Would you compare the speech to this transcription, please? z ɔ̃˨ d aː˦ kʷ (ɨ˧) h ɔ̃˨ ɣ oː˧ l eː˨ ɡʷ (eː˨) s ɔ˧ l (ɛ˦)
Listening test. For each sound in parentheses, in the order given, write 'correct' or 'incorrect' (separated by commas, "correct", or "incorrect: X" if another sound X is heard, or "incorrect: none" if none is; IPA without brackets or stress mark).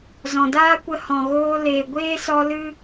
incorrect: ə˧, incorrect: eː˦, incorrect: ɨ˦